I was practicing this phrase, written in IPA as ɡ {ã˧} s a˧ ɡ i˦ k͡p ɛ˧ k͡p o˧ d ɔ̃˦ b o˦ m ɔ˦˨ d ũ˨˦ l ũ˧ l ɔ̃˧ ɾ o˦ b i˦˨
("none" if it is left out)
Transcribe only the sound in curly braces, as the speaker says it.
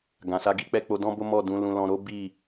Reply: ã˨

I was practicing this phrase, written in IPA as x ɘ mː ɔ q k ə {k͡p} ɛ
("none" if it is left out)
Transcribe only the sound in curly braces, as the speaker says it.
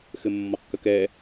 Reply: k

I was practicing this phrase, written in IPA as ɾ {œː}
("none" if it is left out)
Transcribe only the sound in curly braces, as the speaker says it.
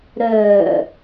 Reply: œː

